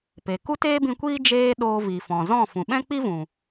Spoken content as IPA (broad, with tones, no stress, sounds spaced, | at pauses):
p e˨ k u˦ t eː˦ b ĩ˧ kʷ iː˦ d͡ʒ eː˦ ɗ oː˧ v i˨ f ɔ̃˨ z ɔ̃˦˨ f ũ˨ ɓ ɛ̃˦ k͡p i˦ v ũ˨